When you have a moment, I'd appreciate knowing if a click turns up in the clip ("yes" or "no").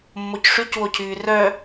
no